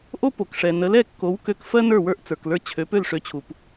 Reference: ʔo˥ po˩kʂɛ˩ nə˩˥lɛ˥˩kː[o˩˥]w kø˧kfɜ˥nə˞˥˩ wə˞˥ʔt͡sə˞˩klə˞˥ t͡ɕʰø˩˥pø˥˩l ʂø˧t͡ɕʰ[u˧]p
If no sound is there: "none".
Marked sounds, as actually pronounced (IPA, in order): o˩˥, u˩

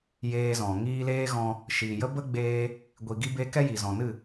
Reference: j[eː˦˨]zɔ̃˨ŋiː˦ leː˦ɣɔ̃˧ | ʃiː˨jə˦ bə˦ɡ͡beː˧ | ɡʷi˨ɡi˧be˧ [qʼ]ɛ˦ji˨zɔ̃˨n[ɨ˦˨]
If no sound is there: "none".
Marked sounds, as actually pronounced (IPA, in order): eː˧, k, ɨ˦˨

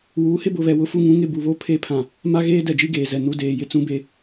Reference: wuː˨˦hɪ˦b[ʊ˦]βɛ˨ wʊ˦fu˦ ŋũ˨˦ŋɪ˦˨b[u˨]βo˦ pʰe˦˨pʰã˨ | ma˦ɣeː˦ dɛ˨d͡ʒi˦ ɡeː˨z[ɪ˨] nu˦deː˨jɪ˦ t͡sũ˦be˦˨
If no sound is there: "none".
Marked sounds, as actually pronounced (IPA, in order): ʊ˨, u˨, ɛ˨

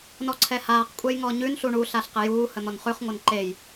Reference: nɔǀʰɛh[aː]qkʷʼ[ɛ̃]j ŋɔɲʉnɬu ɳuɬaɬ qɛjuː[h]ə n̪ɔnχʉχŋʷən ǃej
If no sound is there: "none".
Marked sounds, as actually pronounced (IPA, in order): aː, ɛ, h

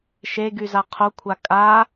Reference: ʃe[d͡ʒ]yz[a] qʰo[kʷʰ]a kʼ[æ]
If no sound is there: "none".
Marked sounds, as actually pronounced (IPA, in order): ɡ, a, kʷʰ, a

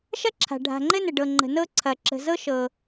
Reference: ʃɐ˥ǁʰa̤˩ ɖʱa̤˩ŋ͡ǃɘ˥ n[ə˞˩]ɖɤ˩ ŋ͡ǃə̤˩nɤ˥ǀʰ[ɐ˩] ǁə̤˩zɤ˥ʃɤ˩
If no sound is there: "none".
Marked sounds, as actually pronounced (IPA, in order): ə˩, ɐ˩

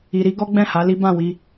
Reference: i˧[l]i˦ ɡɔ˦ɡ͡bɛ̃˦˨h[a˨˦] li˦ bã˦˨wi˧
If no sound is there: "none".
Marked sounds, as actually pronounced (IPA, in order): ɾ, a˨˦

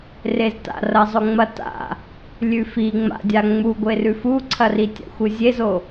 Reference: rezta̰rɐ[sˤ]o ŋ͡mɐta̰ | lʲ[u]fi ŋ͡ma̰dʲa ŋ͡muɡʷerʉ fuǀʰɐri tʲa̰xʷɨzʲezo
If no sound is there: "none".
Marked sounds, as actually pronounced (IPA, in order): zˤ, ʉ

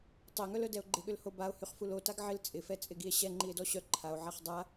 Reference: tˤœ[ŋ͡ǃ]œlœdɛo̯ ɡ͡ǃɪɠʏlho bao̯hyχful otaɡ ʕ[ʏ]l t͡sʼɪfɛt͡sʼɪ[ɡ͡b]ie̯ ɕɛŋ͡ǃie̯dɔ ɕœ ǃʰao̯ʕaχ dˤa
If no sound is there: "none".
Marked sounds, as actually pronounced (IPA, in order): ŋ, ɪ, ɡ

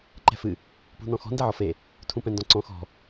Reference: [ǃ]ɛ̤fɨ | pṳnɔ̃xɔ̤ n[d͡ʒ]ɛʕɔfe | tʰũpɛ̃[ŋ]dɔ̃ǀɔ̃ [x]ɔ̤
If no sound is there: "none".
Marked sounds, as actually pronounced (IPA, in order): ǃ, d, n, x

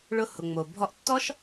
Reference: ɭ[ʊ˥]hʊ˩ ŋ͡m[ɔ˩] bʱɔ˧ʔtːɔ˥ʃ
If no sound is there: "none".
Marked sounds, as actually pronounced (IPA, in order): ʊ˧, o˩

